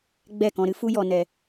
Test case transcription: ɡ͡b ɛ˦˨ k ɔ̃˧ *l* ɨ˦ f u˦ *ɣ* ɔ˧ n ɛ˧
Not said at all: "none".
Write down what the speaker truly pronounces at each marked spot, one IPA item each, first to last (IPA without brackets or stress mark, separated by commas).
ɾ, j